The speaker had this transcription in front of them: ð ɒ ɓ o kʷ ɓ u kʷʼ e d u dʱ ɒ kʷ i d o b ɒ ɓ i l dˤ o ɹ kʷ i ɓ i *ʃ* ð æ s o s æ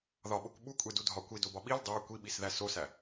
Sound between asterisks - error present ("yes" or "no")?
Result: yes